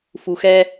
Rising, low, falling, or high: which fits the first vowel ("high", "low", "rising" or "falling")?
low